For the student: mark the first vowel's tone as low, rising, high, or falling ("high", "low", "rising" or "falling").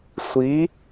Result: rising